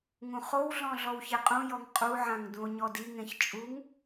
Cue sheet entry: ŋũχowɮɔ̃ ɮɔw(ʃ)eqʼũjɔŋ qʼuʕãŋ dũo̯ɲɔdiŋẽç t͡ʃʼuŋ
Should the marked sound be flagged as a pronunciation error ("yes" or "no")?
yes